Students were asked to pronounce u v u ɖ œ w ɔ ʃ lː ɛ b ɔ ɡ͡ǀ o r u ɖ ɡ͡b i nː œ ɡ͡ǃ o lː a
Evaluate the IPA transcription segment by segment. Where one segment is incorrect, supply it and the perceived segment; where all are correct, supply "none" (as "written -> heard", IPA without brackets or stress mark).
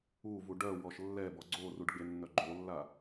i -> e